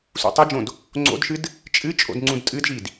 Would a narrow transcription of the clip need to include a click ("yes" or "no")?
yes